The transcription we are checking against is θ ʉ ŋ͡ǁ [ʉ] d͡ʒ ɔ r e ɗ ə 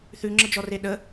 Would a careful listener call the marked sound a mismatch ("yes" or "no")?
yes